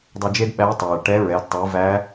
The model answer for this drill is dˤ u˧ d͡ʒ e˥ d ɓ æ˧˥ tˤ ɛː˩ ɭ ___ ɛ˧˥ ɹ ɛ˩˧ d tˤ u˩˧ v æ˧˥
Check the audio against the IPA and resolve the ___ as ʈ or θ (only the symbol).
ʈ